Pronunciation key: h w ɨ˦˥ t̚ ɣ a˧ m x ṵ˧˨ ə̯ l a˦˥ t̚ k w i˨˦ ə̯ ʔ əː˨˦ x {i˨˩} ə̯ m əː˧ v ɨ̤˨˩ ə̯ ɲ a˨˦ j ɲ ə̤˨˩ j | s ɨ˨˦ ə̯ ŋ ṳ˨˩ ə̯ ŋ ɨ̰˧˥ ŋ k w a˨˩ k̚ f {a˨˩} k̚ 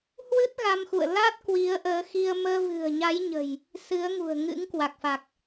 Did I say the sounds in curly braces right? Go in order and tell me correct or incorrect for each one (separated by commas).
incorrect, correct